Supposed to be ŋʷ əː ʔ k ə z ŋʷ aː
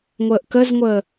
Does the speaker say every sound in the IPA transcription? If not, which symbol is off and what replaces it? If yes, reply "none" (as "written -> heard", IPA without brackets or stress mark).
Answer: aː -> əː